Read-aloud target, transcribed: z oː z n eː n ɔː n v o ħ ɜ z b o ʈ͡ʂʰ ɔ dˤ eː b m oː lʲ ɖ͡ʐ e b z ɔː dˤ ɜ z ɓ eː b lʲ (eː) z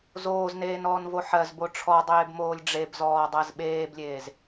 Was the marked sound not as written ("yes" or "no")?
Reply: no